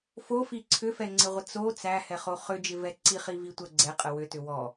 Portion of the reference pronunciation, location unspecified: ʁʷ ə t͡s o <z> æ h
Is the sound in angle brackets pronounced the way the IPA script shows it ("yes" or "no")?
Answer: no